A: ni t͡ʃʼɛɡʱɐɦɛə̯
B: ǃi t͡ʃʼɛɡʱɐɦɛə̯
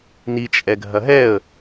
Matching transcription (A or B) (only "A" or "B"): A